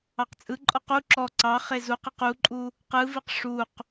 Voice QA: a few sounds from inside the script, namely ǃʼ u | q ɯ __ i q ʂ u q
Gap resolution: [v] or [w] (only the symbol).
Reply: v